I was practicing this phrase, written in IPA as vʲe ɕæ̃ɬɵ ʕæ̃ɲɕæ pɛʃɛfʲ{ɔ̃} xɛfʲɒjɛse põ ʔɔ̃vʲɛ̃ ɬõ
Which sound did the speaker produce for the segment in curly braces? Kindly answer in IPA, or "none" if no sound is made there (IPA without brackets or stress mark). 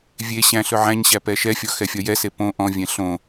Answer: ɔ